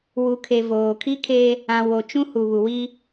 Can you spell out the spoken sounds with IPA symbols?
w u˨ kʰ e˨ v oː˨ kʰ i˦ kʰ e˦ | ã˨ w o˨ t͡ʃ ũ˦ h u˨ β u˨ w i˦

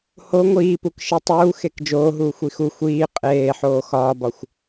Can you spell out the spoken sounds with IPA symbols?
h o ŋʷ iː p u k ʃ e tˤ uː x e k d͡ʒ oː ɦ uː xʷ i x u xʷ iː qʼ eː ħ oː x ɒː b ɒ xʷ

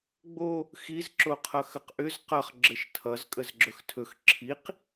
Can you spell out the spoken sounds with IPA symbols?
ɡ͡b o | x i z ǁ o qʰ ʌ x ə q ʔ ʏ z q ʌ χ ɡ͡ǁ ɘ ʃ tʰ ʌ z kʼ ə z ɡ͡ǁ ɵ x tʰ ɵ x ǁʰ i q

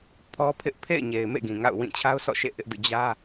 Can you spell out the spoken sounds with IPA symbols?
pʰ ɔ˦ pʰ ɪ˦ ʔ pʰ ḛ˦˨ ɪ̯ ɲ e˨ ɪ̯ m ḛ˦˨ ɡ ĩ˨ ŋ a̰˦˨ ʊ̯ w ĩ˦˨ t͡ɕʰ a˦ ʊ̯ s ɔ̰˦˨ ʃ ḛ˦˨ ʔ ɪ˦ ʔ d ṵ˦˨ d͡ʑ ä˦

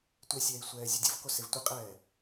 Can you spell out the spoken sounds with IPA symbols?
tʷ e sʲ ɛː i̯ sʷ ɛː zʲ u dʲ o v k o s e v tʷ e qʼ ɛː

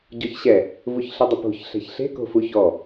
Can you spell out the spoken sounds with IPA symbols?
ɟ ɔ ç ɕ ɛ | v u ç ɬ ɪ dˤ ɪ p o̤ ç ɬ ɛ̤ ç ɬ e̤ k o̤ f u ç ɔ

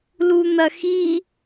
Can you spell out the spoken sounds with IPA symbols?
l u n̪ ɐ x i

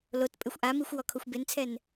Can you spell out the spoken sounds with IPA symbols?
l o t pʼ ɪ xʷ ʔ a m i xʷ w ɔ kʰ o xʷ b e n t͡sʰ ɛ n

